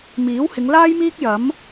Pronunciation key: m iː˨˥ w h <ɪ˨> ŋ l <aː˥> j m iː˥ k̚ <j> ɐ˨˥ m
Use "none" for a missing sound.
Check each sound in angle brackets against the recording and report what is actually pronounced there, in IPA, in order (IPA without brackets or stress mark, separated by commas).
ɪ˨˧, aː˥, j